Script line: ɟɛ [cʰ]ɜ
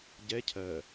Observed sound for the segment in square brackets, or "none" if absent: cʰ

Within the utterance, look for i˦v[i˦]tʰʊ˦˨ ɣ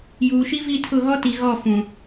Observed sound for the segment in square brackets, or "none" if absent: i˦˨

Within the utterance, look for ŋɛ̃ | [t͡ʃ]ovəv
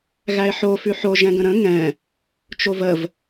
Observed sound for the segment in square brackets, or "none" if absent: t͡ʃ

